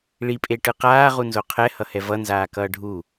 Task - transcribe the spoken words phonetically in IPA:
ɭipʼeʈɯ qaːʁunzo qʰɛhʌhɛ vʌnzaːkʌː ɖʱu

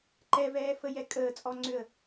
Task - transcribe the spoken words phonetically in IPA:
ǃɛvɛː fəjɛkʼəːt͡sʼɔ ŋ͡ǀʏə̯

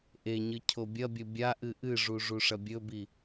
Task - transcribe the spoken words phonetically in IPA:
ʔeɲɨ cʰobʲɐbʲɵ bʲaʔɨ ʔɨʐu ʐuʂɐbʲɵbi

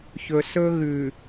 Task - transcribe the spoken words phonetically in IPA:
çɵ˨sɵ˦ɣʉ˨

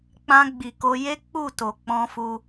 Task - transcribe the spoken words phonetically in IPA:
k͡pã˧ ɡ͡bi˨ko˧je˦ k͡pu˦˨to˨k͡pɔ̃˧fu˧

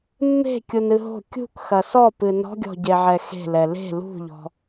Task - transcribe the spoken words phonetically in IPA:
mːe̤kʲunɨ ɦo̤ kʲṳkxɐ sɔpɨ nɔ̤ɡʲɔ̤ɟeʕɛ xe̤lɛ le̤ lṳʎɔ̤

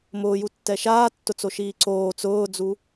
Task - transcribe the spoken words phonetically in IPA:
mʊːjutːɛ ʃaːtːʊt͡soʃiː ǀoː t͡sʊːd͡zu

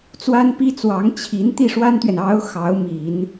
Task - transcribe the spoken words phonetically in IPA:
t͡swa˥npi˥t͡swɑ˧˥ŋ t͡ɕʰi˧˥n t̪i˥˩ʂwa˥nt̪ɥɛ˨n ɑ˧˥ʊ̯ xɑ˧˥ʊ̯mi˨˩˦n

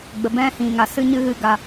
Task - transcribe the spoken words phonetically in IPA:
ɡ͡bə˨bɛ̃˦hĩ˨ ŋa˨sɨ˦ɲɨ˦ɣɨ˧ ɡa˨

